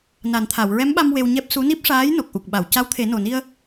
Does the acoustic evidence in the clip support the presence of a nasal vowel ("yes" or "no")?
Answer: no